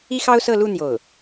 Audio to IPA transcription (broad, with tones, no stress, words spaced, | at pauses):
i˥xɑ˥ʊ̯sɤ˥˧lu˥˧ n̪jo˥˩ʊ̯